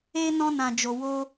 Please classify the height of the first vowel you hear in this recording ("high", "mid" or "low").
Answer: mid